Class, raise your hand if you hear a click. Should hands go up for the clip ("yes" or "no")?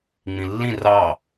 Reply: no